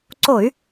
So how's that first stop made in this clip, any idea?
click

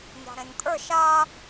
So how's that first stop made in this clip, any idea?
ejective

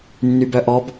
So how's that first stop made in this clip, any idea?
plain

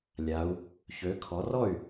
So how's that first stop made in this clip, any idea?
aspirated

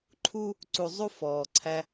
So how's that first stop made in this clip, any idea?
click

